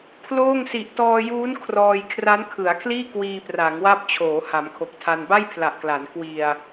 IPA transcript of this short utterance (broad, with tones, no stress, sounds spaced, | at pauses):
pʰ l oː˥˩ ŋ s i˨˩ ʔ t ɔː˧ j uː˦˥ n kʰ r ɔː˧ j kʰ r a˦˥ n kʰ ɯ˩˦ a̯ kʰ l iː˥˩ k w iː˧ p r a˩˦ ŋ w a˦˥ p̚ t͡ɕʰ oː˩˦ h a˩˦ m kʰ o˨˩ k̚ tʰ a˧ n b a˥˩ j pʰ l a˨˩ ʔ k l a˩˦ n k w i˧ a̯